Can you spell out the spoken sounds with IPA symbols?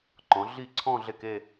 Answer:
ǃ ɔ̃˩˧ ɮ i˥˩ ǀʰ ɔ̃˥˧ ɮ e˥˩ k e˥˧

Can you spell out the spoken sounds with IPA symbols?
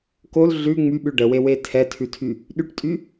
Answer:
k o l ɮ ʉ ŋ͡m y ɓ ʉ ɖ ə w e w e tʰ ɛ tʰ ʉ tʰ y | ɗ y ʈ tʼ y

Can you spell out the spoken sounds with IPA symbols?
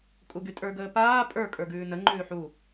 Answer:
kʼ u ɡ y tʼ ə˞ ɡ əː p aː pʼ ə˞ kʼ ə˞ ɡ ʉː n ə ŋ͡ǃ ʉː ħ u

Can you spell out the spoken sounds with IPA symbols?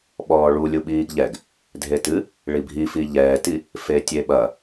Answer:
ɓ ɔː ɭ u lʲ u ɓ iː ɡ ʎ ɛ ɡ | dʱ e t ɨ | ɭ i bʱ i f i ʎ ɛː t i | f e tʲ e ɓ ɐ

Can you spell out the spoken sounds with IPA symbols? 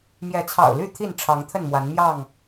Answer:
m j ɛ˨˦ t͡sʰ ɑ̰˨˩ ʊ̯ l y˥˨ t̪ʰ i˥˨ n ʈ͡ʂʰ ɑ˨˦ ŋ t̪ʰ ə˥˨ n m w a˨˦ n m j ɑ˥˨ ŋ

